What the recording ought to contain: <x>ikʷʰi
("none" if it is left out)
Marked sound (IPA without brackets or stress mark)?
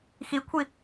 x